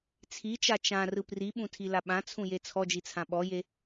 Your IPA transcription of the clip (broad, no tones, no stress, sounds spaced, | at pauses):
t͡sʰ i t͡ʃ a t͡ʃ ã r ɯ p r i ɓ ũ tʰ i l a ɓ ã t͡sʰ ũ j e t͡sʰ ɔ d͡ʒ i t͡sʰ ã ɓ ɔ j e